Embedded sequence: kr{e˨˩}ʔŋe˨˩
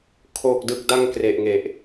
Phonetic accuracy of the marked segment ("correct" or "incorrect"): correct